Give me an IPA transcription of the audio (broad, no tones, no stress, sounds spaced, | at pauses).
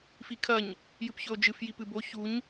f i kʰ ɐ ɲ | j ɨ p ç ɵ o̯ d͡ʒ ɨ f j i p ɨ b o ç u ɲ